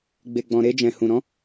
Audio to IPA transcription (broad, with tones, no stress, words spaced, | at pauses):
ɡ͡be˨ɡ͡bɔ̃˨ɾe˧d͡ʒɛ̃˨ hũ˨ɾɔ̃˨˦